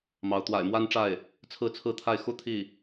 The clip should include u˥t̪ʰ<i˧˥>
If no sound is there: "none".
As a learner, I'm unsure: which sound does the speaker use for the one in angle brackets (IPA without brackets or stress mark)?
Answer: i˥˩